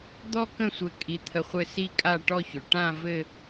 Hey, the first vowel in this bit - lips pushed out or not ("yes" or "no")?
yes